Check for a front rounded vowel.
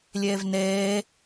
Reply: absent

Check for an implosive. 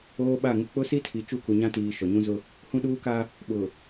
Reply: present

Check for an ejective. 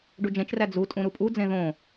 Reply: present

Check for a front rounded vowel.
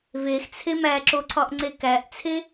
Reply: absent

